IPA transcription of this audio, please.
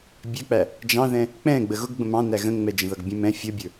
bʲɛk͡pæ | d͡ʒɑ̃ðɛ̃ | k͡pɛ̃ ɡ͡bəɣʊɡ ɡ͡bə̃mɑ̃ næɣə̃ ŋ͡mɛd͡ʒə̃ðʌɡbʲə̃ mɛ̃ fʲʌbʲə˞

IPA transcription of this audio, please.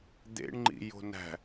d̪ḛɳŋ͡ǃḭ jo̤næ̤

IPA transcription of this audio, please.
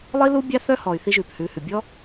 lˠi˦lu˦bʲɑ˦ θœ˦hɔ˨y̯ θi˧ʒʉː˨phʉː˨hʉ˨ bʲɔ˦

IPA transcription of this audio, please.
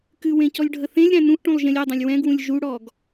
kɨwẽ cɔlʲɖʱəθẽlʲɾæ̃ nũʔʈũlˠ ʒẽlʲidˤɛ̃lʲ wɛ̃ɡwũlʲ ʒuɽɔɡ

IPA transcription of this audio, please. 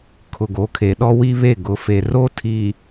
kʰʊ˨ɡo˨˦kʰe˨ɗɔ˦ wi˦βe˦˨ ɡʊ˨fe˨ ro˦tʰi˨

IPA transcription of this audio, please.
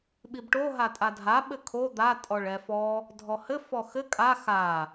ɓibʈo ɦatʼadʱa ɓɘkʰo d̪a tʼɔɭɛfɔ | dʱɔhɘ fɔxɘ kʼa xa

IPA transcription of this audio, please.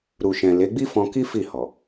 ɾu˨ʃɛ̃˨ le˨˦ɡ͡bi˦fɔ̃˧ ki˦ fi˦˨hɔ˨

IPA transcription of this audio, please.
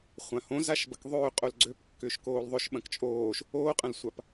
χʷãhõ zaʃbɐkðˤøː qʼolɡ͡ǀøpkːʏːʃ koːlðˤʏʃ ɓɐ̃kt͡ʃʼoːʃ | oːqʼɐ̃lsʷap

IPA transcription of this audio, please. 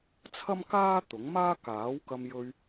t͡sʰɐ˥mkaː˥ t̪ʊ˨˥ŋmaː˥ kaː˨˥wkɐ˧mjɵ˧ɥ

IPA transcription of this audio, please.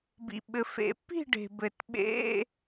bḭ˩ɓɘ˩fḛ˨˩˦pːi̤˥˨ ɖe̤˩ bɘ˩tɓḛ˧˥˧

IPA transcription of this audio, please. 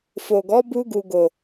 fo˨ɡɔ˨˦bu˧ɡu˨ ɡo˨

